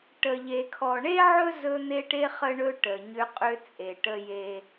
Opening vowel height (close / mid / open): mid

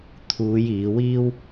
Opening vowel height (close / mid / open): close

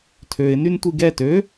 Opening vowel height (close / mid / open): mid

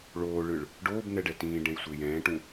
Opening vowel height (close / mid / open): mid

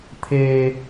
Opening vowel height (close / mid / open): mid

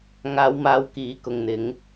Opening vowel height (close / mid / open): open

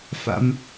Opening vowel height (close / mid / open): open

